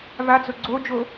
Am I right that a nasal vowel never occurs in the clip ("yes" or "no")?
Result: yes